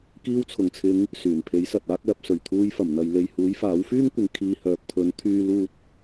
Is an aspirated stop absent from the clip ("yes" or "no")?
no